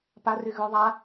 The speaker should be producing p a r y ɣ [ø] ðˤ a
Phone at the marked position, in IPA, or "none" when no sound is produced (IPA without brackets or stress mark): ø